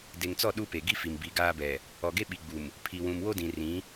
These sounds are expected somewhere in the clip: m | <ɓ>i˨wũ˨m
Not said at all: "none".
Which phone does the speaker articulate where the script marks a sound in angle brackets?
pʰ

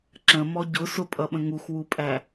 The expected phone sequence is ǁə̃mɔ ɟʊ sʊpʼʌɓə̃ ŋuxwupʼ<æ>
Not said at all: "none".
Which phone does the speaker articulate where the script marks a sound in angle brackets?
æ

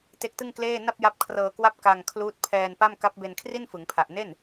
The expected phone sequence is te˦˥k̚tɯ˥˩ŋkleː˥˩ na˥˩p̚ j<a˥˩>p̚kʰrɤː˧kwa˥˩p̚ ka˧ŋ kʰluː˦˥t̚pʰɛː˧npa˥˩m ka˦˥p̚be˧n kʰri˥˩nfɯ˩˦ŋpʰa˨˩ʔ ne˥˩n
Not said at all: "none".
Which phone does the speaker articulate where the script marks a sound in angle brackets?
a˦˥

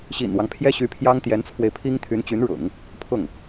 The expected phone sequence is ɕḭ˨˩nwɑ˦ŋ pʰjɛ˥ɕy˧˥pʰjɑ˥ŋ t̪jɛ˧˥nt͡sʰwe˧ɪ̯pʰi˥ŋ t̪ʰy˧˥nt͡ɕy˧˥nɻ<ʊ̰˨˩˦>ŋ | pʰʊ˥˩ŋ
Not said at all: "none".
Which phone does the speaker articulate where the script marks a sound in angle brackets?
ʊ̰˨˩˦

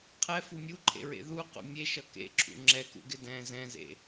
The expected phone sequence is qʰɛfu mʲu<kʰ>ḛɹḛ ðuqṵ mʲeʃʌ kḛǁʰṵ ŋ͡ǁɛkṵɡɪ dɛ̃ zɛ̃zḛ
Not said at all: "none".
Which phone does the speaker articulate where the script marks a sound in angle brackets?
ǃʰ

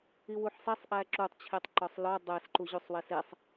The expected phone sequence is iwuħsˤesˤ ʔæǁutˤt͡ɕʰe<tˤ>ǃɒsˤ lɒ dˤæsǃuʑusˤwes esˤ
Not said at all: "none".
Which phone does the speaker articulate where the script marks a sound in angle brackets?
tˤ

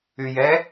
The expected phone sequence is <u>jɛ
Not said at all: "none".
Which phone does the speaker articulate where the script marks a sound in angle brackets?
y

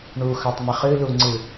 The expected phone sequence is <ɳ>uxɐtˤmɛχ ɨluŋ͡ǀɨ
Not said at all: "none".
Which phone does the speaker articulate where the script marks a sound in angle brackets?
ɳ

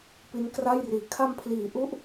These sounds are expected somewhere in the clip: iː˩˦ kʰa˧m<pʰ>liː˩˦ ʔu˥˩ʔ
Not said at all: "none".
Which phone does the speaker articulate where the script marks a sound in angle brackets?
pʰ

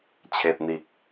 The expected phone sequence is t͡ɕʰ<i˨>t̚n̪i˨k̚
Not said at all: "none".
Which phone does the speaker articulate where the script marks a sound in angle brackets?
e˨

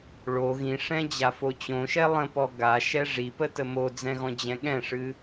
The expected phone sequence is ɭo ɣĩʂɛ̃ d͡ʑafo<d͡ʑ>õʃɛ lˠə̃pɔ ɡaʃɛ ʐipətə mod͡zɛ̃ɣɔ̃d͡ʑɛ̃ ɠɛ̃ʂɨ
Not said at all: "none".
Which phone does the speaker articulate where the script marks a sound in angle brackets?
t͡ɕ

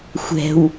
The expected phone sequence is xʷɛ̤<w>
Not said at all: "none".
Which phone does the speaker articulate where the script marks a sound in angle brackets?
w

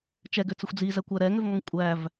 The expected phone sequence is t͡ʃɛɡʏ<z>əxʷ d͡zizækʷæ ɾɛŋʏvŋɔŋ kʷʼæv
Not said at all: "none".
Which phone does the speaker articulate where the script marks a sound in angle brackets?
t͡s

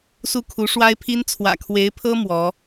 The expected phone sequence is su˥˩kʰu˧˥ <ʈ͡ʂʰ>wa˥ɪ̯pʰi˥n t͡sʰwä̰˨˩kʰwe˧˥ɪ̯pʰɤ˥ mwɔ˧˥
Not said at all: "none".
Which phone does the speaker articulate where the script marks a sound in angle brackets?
ʂ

